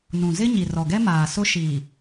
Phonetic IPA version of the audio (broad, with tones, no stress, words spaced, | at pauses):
nũ˨zɪ˦ ɲi˨rɔ˨ɡɛ˦maː˨ sʊ˦ʃiː˨